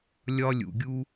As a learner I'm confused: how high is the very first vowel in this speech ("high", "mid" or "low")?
low